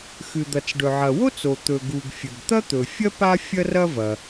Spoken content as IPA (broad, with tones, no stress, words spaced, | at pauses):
xɨ˩d̪ɐ˩t͡sɖɵ˩ʕɐ˩ wo˥t͡so˩ t̪ɵ˩ɡu˩ɡ fʲɵ˩ɡt̪ɐ˥t̪ɵ˩fʲɐ˥ pa˥fʲɐ˥rɐ˥vɐ˩